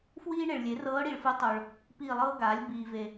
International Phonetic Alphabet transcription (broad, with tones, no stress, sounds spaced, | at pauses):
f w iː˥ ɳ e˨ ɭ lʲ e˩˥ r ɤː˧˥ ɽ i˨ ɭ f ɯ˧˥ tˤ o˨ ɭ | p iː˦˨ lˠ ɤː˥ ɡ aː˩˥ lʲ b iː˨ v e˨